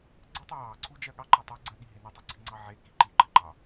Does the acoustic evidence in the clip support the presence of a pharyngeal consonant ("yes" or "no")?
yes